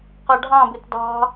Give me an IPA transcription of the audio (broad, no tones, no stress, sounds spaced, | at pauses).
q ɑ ɖʱ ɑ̃ b ɪ t d ɑ̤